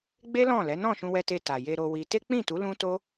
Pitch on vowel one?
high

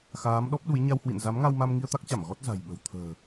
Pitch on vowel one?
rising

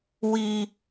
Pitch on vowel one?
high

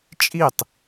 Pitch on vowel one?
falling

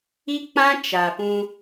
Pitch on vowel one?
high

